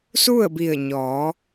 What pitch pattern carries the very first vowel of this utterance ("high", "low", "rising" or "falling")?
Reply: falling